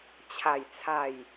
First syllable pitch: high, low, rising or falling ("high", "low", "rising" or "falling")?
falling